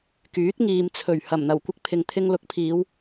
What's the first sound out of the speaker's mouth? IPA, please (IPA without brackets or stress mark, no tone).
k